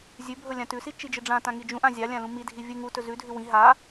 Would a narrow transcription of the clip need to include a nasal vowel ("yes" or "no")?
yes